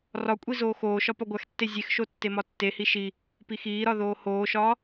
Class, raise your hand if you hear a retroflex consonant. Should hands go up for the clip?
no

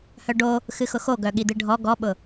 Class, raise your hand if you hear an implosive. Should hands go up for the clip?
yes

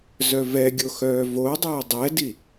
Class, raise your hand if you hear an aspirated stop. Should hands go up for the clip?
no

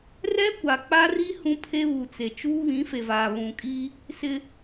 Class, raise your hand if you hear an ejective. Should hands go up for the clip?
yes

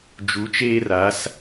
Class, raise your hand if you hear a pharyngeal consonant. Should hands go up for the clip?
no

